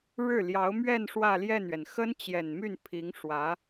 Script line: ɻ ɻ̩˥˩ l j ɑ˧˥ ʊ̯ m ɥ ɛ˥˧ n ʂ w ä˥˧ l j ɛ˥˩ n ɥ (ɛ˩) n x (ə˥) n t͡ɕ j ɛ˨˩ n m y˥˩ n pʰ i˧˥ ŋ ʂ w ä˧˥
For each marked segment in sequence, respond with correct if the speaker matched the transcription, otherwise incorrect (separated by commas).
correct, correct